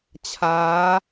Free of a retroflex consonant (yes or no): yes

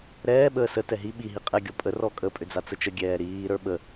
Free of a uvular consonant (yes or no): no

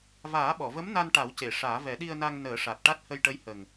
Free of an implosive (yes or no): no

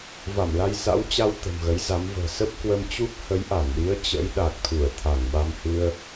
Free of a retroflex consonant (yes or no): yes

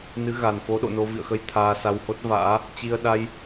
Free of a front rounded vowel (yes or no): yes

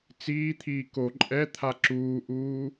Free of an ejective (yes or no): no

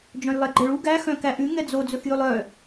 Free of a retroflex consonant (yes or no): no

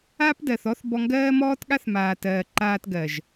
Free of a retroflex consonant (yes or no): yes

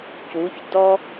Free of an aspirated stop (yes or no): yes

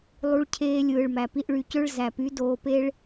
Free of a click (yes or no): yes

